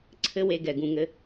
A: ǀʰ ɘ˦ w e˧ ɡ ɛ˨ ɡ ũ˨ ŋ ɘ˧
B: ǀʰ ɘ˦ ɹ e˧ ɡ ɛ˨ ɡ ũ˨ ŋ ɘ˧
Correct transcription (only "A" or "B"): A